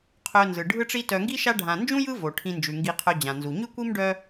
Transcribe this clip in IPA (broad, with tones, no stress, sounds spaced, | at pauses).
qʰ œ˨ n z ɯ˩ ɖʱ ɯ˦ ʈ͡ʂ i˦ t œ˨ ŋ ɡ i˥ ʃ a˦ ɖʱ ã˨ n d͡ʒ ũ˥ j ɯ˦ v o˩ ʈʰ ĩ˨ n d͡ʒ ʉ˩ ŋ ɡ i˨ qʰ œ˨ d͡ʑ ã˩ n z u˩ ɲ ʉ˥ kʷ i˥ m ɖ œ˦